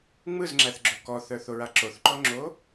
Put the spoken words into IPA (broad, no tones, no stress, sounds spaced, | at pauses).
ŋ͡m ɯ z ŋ͡ǁ æ θ ɡ͡ǁ o k ɔ θ œ θ o ɹ a ǁ o θ ǃ ɔ ŋ͡ǁ o